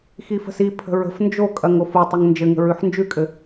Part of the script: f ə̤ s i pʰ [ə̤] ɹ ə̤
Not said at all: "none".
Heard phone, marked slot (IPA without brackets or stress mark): ə̤